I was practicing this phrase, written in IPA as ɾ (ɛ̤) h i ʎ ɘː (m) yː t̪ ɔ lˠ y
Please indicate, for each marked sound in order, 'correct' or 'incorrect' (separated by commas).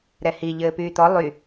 incorrect, incorrect